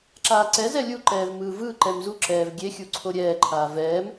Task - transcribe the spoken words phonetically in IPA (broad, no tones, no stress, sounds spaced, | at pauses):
ǁ aː ǀ ɛ z ɛ lʲ u ǃ ɛː v m ɯː v ɯ ǃ ɛ m z u ǁ ɛː v ɡʲ e xʲ u ǀʰ o ɾʲ ɛː ǃʰ aː v ɛː m